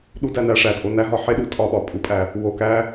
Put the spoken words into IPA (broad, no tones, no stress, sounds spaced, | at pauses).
ɗ u d æ n æ ʂ æ tʼ o n æ ɦ ɒ ħ e ɗ u tʼ ɒ ɓ ɒ pʼ u pʼ æ | w o k æ